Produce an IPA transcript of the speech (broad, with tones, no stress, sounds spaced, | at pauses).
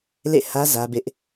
l ḛ˦˨ h ä˦ z ä˦ b ɪ˦ ʔ